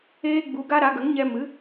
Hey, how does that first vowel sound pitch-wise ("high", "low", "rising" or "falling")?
high